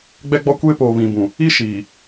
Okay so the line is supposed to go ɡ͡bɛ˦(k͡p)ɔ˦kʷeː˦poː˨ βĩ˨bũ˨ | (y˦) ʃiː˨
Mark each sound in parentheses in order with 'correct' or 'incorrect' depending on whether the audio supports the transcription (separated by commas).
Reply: incorrect, incorrect